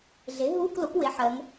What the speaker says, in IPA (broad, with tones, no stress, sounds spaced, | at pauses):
ɮ e˩˥ ɦ uː˧˥˧ k l o˩˥ k w e˩˥ ħ ɜ˩˧ ŋ